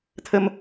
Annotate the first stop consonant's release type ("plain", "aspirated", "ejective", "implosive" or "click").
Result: aspirated